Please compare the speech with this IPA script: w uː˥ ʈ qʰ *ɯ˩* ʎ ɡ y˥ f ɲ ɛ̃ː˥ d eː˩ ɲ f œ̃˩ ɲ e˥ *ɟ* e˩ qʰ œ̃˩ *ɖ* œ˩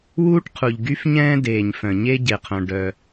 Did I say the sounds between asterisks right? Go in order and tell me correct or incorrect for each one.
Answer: incorrect: u˩, correct, correct

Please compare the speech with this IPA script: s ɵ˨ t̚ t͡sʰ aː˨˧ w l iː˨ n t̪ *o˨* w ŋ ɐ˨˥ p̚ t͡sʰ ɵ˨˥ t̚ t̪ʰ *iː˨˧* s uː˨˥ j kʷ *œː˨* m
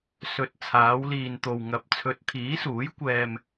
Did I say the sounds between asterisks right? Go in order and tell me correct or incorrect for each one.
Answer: correct, incorrect: iː˨˥, incorrect: ɛː˨

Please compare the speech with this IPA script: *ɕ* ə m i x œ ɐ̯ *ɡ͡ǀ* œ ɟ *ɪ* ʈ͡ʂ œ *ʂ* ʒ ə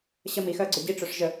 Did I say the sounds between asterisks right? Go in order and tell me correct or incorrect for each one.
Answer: correct, correct, incorrect: i, correct

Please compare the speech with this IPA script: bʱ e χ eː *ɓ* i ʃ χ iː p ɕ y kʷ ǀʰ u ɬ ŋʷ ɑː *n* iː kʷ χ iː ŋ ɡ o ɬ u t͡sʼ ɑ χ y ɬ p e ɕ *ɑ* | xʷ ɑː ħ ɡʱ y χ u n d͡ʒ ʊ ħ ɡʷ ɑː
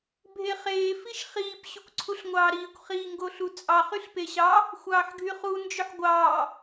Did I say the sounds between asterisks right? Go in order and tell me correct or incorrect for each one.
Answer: incorrect: f, incorrect: ɾ, correct

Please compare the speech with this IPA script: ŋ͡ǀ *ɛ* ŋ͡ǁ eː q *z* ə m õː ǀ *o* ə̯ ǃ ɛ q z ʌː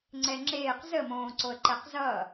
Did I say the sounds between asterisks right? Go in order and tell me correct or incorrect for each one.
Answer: correct, correct, correct

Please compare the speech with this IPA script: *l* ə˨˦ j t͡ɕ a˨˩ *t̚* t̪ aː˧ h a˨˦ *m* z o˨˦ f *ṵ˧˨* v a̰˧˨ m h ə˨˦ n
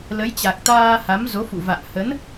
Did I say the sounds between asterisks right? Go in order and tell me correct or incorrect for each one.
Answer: correct, incorrect: k̚, correct, correct

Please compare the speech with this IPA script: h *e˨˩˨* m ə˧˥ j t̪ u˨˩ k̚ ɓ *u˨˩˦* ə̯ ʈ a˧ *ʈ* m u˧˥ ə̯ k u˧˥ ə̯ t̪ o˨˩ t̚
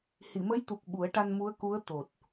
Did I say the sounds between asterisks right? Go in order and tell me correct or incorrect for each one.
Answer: incorrect: i˨˩˨, correct, incorrect: n

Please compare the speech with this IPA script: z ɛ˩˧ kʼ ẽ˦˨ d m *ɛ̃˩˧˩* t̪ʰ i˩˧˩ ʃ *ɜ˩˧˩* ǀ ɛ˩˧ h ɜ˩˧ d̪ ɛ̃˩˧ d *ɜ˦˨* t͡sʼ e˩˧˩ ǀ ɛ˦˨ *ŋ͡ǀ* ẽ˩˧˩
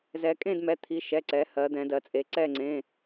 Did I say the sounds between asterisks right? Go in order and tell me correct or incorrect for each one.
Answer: incorrect: ɛ˩˧˩, incorrect: ɛ˩˧˩, incorrect: ɜ˩˧, correct

